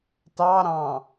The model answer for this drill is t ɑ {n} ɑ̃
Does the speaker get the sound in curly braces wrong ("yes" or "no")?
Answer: yes